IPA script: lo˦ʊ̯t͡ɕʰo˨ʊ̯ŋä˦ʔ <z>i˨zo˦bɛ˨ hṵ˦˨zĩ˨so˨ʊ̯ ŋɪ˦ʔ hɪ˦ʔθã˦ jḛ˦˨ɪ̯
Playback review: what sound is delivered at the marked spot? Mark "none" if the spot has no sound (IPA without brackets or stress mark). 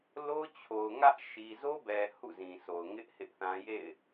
ʃ